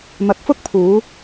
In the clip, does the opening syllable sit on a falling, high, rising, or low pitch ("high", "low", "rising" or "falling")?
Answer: rising